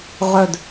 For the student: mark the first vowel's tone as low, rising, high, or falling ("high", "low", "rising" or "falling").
low